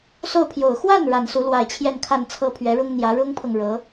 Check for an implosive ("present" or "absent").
absent